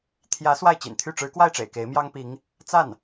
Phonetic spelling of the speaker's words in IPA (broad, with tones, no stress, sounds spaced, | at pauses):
t̪ʰ j ä˧˥ s w a˥˩ ɪ̯ t͡ɕ ḭ˨˩ n t̪ʰ y˥˩ ʈ͡ʂ ɻ̩˧˥ k w a˥˩ ɪ̯ ʈ͡ʂ ḛ˨˩ ɪ̯ k e˧˥ ɪ̯ m j ɑ˥ ŋ p i˧˥ ŋ | t͡s a˥˩ n